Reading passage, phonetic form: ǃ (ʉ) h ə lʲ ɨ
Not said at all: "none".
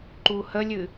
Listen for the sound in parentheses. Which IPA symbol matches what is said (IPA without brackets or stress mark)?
u